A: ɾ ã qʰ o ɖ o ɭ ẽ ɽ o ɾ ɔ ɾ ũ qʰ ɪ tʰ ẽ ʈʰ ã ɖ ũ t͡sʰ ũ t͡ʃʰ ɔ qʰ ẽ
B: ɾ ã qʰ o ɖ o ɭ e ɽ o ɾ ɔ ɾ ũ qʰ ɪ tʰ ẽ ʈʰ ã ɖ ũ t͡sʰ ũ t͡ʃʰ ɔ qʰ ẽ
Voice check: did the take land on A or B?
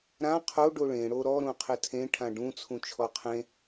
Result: A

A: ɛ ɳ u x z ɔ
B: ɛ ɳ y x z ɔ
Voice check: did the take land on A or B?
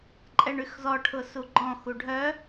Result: B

